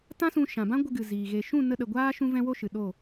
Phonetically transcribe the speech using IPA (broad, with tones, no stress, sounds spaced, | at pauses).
t ã˦ s ũ˧ ʃ ã˨ b ã˦ ɡʷ ə˧ ɡ ɨ˨ z iː˨ ɣ e˨ ʃ ũ˦˨ n ə˧ ɗ ə˨ ɡʷ aː˦ ʃ ũ˦ v ɛ̃˦ w o˦ ʃ ɨ˨ ɗ o˦˨